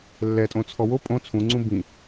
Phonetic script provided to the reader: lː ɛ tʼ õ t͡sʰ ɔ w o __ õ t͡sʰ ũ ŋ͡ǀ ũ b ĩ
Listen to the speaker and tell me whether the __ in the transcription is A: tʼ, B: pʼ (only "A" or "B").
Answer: B